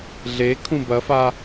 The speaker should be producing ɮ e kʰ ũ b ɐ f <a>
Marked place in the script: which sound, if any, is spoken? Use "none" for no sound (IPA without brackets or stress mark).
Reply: a